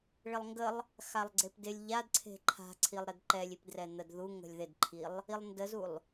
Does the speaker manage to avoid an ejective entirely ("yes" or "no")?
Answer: yes